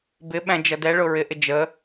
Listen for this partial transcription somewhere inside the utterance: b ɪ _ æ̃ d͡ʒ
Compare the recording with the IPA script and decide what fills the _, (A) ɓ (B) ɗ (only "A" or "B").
A